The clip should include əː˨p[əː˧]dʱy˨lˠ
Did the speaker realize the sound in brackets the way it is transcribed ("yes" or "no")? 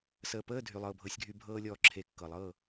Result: no